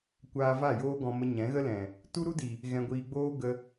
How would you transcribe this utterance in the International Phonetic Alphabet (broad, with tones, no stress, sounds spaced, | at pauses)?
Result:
kʷ aː˧ v a˦˨ j oː˦ ɡ ɔ̃˧ m ə˧ ɲ ɛ̃˨˦ ɣ ə˦ l ɛ̃˨ | t u˦ ɾ u˦ d i˨ | ɣ ɛ̃˧ ɡʷ iː˧ ɡ͡b oː˦ ɡ ə˧